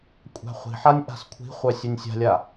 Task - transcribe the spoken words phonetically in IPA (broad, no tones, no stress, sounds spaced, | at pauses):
kʷʼ æ̤ χʷ i̤ ħ a nʲ ʔ a̤ s kʷʰ i̤ χʷ œ sʲ æ nʲ sʲ a̤ lʲ a